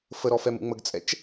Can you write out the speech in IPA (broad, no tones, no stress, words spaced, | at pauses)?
fəɾɔ fɛmṵŋ͡məɡt͡sʼɛ̰t͡ʃ